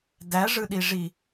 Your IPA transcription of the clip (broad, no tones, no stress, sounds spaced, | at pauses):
d æ ʐ ɯ ɗ i ʐ i